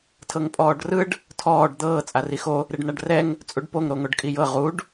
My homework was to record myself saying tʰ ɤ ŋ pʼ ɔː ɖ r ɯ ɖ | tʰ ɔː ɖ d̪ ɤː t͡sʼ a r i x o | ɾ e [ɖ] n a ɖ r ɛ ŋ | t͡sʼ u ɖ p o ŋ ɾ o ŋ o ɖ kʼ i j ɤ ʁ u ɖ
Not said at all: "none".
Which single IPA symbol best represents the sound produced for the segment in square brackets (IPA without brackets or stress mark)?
ɖ